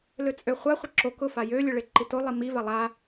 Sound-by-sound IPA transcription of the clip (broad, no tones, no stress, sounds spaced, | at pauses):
l ø t͡sʼ ø χʷ a χʷ ə ǁ o k ʊ f a j ø lʲ ø ɭ e ǃ i t o lˠ i m i v a lˠ a